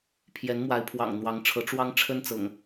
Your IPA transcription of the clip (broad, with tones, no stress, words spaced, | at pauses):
pʰjɛ˨˦nmwa˨˦ɪ̯ pʰwɑ̰˨˩ŋn̪wɑ˨˦ŋʈ͡ʂʰɤ˨˦ ʈ͡ʂwɑ˦ŋʈ͡ʂʰə˦n t͡sɤ̰˨˩ŋ